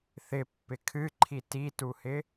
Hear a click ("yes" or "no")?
yes